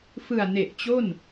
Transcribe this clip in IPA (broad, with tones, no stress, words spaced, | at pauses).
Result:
fɯ˨˩a̯ ne˨˩ʔt͡ɕo˥˩n